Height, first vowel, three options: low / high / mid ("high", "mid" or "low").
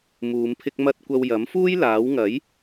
high